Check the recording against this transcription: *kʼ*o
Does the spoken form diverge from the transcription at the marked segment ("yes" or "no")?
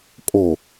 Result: no